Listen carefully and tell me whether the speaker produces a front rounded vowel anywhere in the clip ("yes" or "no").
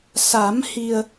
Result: no